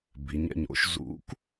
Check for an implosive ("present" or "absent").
absent